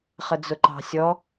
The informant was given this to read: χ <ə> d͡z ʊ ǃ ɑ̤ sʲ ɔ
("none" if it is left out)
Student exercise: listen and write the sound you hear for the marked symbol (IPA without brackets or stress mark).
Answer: ə